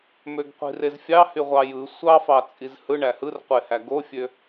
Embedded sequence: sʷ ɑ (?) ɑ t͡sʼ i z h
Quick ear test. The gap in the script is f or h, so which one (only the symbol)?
f